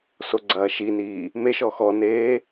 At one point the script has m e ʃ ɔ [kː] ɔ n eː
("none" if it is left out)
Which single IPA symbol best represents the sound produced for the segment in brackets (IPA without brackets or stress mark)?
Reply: x